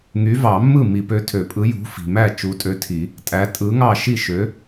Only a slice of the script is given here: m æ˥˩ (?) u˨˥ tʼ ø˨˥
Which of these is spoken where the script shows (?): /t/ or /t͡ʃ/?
t͡ʃ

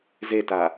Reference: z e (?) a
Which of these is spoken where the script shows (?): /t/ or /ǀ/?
t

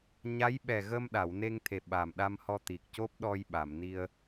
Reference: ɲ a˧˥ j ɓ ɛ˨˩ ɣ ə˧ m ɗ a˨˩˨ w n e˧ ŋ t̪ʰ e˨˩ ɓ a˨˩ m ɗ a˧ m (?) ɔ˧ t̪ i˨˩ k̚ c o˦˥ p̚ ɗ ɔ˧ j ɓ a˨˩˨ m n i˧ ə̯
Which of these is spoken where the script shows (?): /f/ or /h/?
h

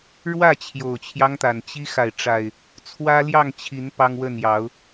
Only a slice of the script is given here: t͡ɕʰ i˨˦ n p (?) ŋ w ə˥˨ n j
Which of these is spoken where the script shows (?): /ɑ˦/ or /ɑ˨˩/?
ɑ˦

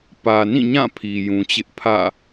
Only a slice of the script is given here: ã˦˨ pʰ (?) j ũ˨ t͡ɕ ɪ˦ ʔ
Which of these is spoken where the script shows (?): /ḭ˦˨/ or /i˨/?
i˨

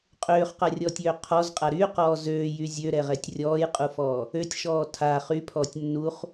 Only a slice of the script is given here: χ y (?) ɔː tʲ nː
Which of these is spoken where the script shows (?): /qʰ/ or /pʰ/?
pʰ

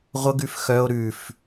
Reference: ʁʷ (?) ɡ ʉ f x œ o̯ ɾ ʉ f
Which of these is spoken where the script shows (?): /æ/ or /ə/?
ə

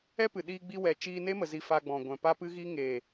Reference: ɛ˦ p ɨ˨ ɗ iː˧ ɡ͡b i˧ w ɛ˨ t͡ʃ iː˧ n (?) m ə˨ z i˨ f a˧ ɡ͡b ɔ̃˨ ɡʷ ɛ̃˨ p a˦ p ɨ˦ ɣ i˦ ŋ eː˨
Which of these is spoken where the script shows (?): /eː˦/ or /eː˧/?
eː˦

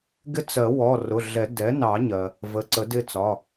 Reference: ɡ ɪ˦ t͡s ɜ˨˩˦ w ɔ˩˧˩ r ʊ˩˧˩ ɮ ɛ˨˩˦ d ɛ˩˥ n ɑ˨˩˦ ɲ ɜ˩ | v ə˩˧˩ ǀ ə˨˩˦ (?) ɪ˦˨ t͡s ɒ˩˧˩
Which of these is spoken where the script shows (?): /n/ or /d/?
d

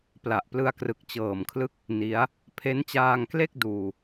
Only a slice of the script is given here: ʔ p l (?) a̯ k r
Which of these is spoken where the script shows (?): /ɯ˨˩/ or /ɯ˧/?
ɯ˧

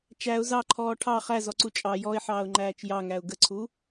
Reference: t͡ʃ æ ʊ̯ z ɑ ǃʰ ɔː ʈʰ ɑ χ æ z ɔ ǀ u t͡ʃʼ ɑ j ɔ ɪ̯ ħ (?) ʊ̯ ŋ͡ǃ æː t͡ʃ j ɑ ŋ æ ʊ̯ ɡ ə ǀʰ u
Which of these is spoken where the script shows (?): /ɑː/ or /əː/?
ɑː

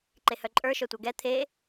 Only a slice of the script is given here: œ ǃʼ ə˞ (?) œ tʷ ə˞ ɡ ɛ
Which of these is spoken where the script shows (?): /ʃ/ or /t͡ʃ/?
ʃ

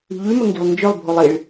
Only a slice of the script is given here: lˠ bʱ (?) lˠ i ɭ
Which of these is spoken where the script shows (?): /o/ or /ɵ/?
o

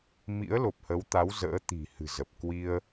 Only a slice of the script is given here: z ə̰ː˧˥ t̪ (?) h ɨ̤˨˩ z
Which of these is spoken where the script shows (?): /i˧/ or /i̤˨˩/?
i̤˨˩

